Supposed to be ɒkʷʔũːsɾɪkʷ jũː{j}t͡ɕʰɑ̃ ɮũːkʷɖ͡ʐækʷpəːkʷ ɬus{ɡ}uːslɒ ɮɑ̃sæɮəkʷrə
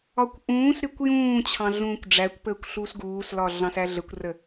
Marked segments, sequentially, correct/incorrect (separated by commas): incorrect, correct